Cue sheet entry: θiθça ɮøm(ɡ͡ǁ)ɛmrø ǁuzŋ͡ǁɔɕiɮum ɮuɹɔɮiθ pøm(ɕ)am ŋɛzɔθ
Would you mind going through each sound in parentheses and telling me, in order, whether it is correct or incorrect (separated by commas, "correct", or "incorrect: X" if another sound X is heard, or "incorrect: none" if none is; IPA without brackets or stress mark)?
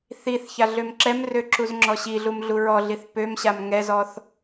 incorrect: ǁ, correct